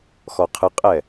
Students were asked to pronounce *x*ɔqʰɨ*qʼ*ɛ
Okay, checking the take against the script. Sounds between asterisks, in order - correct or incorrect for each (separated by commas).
correct, correct